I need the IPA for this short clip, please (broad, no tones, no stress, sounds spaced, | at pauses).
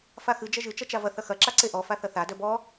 f a x ɨ d͡ʒ ɐ ʒ ɨ t͡ʃ ɐ t͡ʃ a v ɐ θ ɐ x ɐ ǁ a ǀ e ʔ ɔ f a θ ɐ θ a d œ b ɔ